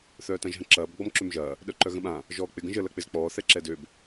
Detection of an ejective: absent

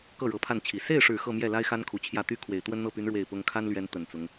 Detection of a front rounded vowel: present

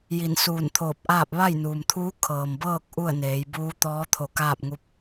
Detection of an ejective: absent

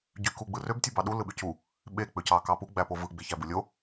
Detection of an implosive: present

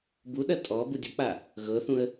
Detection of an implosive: present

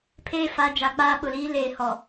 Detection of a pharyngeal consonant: absent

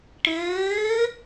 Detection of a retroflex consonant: present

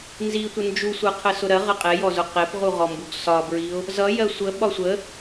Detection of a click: absent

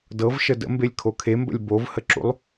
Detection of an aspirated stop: present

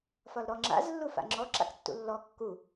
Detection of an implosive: absent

